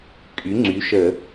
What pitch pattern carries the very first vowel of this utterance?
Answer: rising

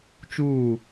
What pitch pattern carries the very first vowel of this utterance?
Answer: falling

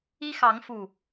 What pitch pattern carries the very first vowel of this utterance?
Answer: high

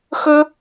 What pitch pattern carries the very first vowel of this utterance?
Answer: high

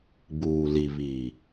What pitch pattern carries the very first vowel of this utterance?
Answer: low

